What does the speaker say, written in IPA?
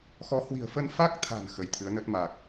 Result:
x ɔ˨˦ h w i̤˨˩ ə̯ f ə˧ n f a˦˥ k̚ t̪ʰ a̤˨˩ n x ə˨˦ j t̪ʰ ɨ˨˦ ə̯ n ə˦˥ t̚ m a˨˩ k̚

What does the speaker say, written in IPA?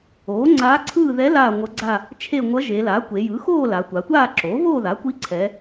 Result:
oː˩˥ ŋ͡ǀ aː˧˥ ǀʰ ɯː˥˧ ð ɛ˧˥ l aː˥˧ ŋʷ ʌ˧˥ ɡ͡ǀ a˥˧ | t͡ʃʰ e˥˧ ŋʷ ʌ˧˥ ʒ e˩˧ l a˩˥ kʷ e˩˧ j ɯ˩˥ x oː˥˧ l a˩˧ tʷ a˩˧ tʷ aː˥˧ ǁ oː˩˥ v oː˥˧ ð a˩˥ kʷ i˧˥ ǀʰ ɛ˩˧

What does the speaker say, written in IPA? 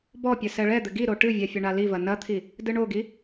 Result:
b ɔ pʲ ɘ s ɛ ɭ ɛ d̪ ɘ ɡ i ɾ o ʈ ɨ vʲ ɛ fʲ ɐ ɳ a l i v ɐ n ɐ t̪ʰ i | d ɨ ɳ o ɡ i

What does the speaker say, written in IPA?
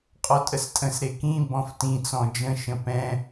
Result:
qʼ ɔ tʼ ə s tʼ ə̃ s ɾ e k ĩ b ɔ̃ f t ĩ t͡s ɔ̃ d͡ʒ ə̃ ʃ ə̃ p ɛ̃

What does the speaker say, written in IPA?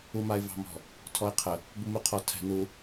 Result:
u m a ɪ̯ v ɑ̤ m ɔ̤ | tʰ ɔ ɪ̯ qʰ ə | b u m u qʰ ɔ tʰ ɛ̤ n u

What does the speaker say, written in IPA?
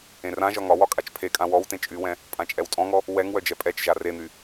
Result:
ẽ r ã ʒ ɒ ŋ ɒ w ɒ kʼ a t͡ʃ pʰ e kʼ ã w ɔ w t ẽ t͡ʃʼ y w ɛ̃ | pʼ ã t͡ʃʼ ɛ w tʼ ɔ̃ ŋ ɔ | w ɛ ŋ w œ d͡ʒ ɛ pʼ ɛ t͡ʃ ʒ a r e n̪ y

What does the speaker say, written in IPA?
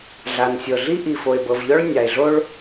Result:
ɮ a˨ n sʲ ɤ˨ ɮ i˦ ʔ i˨ f o˨ e̯ b ɤ˨ v ʎ ɔ˦ ɭ nʲ a˨ e̯ ɮ o˦ ɭ

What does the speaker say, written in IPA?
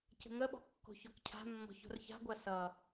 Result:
c ə̤ ŋ ə ɓ ɔ̤ kː o̤ ç o k cʰ a̤ mː ɔ̤ ç o̤ r ç a̤ ɡʷ a s ʌ

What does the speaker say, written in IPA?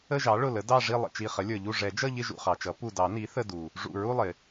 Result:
ə˥˧ ʒ ɑ˩˥ ɭ ʊ˧˩ l ə˩˥ d ɑ˥˧ ʐ i˥˧ lˠ ə̰˧˩ t͡ʃ i˧˩ χ ə˩˥ lʲ ə˞˩ ʎ u˧˩ ʐ ɛ˨˩˦ d͡ʒ ʌ˥˧ ʎ ɪ˥˧ ʒ ṵ˧˩ χ ɑ˩ t͡ʃ ʌ˩˥ p u˧˩ d ɑ˨˩˦ n i˩˥ θ ə˥˧ d u˩ | ʐ ṵ˧˩ ɹ u˥˧ lˠ ɪ˩

